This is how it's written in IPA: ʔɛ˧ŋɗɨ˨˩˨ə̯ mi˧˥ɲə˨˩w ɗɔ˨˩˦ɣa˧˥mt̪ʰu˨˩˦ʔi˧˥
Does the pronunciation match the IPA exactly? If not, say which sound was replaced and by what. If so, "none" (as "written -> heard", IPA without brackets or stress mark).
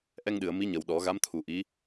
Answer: none